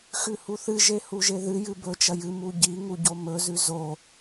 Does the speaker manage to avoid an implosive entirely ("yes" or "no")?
yes